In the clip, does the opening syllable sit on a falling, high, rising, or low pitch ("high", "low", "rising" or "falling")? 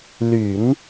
low